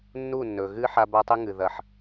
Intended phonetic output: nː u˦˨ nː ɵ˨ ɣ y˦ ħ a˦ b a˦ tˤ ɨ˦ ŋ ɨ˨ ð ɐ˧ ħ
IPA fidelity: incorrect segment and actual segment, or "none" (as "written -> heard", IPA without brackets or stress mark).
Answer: y˦ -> ɨ˦